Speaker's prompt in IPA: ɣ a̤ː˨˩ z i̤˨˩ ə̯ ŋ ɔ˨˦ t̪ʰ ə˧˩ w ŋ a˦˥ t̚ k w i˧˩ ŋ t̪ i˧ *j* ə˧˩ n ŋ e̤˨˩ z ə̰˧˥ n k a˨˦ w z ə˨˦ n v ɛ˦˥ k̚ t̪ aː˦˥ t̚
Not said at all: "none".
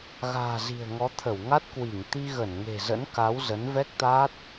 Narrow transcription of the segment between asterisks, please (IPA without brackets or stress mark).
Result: ɣ